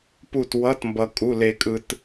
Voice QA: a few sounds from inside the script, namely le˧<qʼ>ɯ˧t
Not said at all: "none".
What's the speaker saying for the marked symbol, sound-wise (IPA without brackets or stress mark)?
kʼ